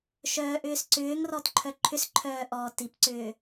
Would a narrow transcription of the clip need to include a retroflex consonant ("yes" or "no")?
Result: no